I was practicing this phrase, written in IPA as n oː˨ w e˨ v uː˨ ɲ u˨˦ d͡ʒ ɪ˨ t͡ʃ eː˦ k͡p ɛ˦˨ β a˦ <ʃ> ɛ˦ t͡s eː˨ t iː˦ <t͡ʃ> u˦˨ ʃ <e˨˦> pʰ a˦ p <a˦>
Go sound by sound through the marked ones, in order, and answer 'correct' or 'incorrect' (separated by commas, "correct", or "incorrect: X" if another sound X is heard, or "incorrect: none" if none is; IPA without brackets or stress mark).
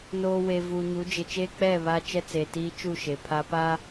incorrect: t͡ʃ, correct, incorrect: e˨, correct